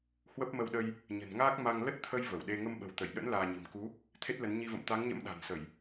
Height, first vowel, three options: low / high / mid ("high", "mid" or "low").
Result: mid